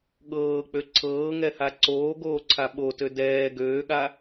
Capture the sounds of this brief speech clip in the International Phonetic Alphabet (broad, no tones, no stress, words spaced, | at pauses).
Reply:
ɠɤːk͡pø ǀʰɤːŋɛha ǀoːɡoːǀʰa ɓotø dɛː ɡøːɠa